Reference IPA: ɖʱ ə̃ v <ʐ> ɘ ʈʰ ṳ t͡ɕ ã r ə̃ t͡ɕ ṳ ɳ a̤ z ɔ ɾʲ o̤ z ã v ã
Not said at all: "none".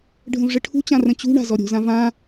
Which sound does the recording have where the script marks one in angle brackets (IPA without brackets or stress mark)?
ʐ